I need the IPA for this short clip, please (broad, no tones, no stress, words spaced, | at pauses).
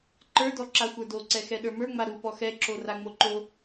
ǃə˞dɔǁa xʷə˞doǀɛxɛ ɗə˞mə˞ŋ͡ma ɾu pɔxɛǁo raŋ͡moǃo